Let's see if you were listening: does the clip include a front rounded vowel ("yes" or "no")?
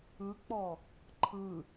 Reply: no